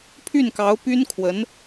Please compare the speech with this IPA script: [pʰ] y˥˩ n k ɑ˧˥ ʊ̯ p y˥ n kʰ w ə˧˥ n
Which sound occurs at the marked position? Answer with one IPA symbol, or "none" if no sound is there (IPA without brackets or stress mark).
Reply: pʰ